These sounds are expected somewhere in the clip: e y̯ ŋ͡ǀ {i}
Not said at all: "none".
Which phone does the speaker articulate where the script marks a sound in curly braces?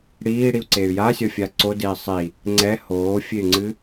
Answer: ɨ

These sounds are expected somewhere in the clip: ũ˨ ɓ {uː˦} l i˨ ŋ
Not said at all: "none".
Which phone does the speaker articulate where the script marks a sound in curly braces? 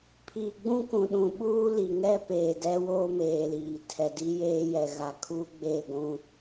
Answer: uː˦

